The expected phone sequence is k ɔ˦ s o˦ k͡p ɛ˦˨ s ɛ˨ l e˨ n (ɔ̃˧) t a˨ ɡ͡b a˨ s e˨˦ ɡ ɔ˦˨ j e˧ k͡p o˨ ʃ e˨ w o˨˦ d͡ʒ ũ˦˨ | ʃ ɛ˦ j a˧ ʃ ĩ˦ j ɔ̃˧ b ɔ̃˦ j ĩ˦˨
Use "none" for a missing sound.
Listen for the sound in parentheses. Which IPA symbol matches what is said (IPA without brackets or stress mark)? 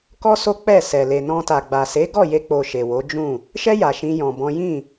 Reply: ɔ̃˧